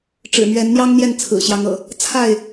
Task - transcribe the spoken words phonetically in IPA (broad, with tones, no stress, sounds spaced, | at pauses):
ʈ͡ʂ ɻ̩˨˩ m ɥ ɛ˨˦ n n̪ j ɑ˦ ŋ n̪ j ɛ˥˨ n t͡sʰ ɹ̩˨˩ ɕ j ɑ˨˦ ŋ ɤ̰˨˩ | t͡sʰ a˥˨ ɪ̯